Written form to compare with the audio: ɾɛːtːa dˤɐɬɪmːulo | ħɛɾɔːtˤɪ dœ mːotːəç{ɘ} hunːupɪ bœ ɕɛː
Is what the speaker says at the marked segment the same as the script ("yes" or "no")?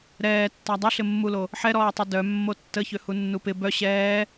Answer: no